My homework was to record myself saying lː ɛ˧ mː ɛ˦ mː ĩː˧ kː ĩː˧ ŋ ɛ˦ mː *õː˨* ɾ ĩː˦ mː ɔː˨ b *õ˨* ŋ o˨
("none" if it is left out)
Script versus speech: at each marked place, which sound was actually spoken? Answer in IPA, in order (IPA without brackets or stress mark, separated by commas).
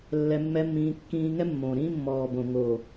õː˨, õ˨